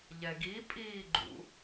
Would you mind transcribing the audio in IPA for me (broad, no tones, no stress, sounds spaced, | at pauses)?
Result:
ʎ ɛ ɡ i pʼ iː ɡ͡ǃ ṵ